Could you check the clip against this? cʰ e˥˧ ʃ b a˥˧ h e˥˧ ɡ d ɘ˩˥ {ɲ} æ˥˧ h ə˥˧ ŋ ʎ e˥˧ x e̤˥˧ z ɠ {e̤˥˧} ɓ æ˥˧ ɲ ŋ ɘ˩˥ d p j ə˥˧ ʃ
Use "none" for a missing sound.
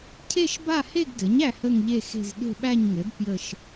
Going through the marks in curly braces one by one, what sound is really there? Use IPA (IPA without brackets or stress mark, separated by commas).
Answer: ɲ, e̤˥˧